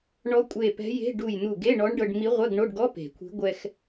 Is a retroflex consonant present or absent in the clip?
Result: present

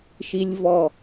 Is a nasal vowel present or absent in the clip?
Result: absent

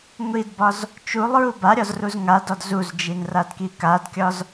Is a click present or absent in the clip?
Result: absent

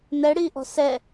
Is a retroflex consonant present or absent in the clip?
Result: present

